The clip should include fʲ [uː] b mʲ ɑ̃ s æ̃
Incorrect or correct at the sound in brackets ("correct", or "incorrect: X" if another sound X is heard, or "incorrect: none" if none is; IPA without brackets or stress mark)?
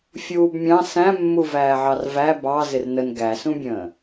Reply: correct